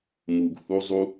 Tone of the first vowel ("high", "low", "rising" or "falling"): low